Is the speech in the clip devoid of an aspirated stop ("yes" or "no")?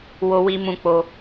yes